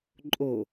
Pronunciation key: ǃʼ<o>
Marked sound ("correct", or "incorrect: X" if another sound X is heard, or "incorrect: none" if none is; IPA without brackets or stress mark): correct